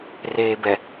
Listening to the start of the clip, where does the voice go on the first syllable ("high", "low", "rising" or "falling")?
low